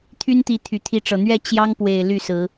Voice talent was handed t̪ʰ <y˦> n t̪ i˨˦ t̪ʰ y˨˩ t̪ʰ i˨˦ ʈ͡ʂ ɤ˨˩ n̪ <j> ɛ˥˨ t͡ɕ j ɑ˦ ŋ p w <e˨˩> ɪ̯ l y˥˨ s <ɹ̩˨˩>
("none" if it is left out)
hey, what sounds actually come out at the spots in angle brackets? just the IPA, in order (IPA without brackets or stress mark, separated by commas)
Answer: y˦, ɥ, e˨˩, ɹ̩˨˦